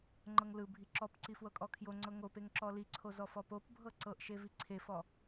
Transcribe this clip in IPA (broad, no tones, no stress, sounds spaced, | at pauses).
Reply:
ŋ͡ǃ ɤ ŋ l ɯ bʱ i ǁ ɔ p ǀ i f w ɤ kʼ ɔ kʰ j o ŋ͡ǀ ɤ ŋ o p e ŋ ǁ ɔ l i ǀʰ o z ɔ f ɔ p o p bʱ ɤ ǀ ɤ ʔ ʃ e v i ǀʰ e f ɔ